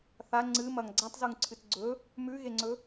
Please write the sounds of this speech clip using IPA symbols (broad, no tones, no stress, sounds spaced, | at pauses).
θ a ŋ͡ǀ ɨ m ɐ ŋ ɡ͡ǀ a tˤ z u ŋ ǀʰ ɨ t ɡ͡ǀ ɵ | m ʉ ɣ e ŋ͡ǀ ɵ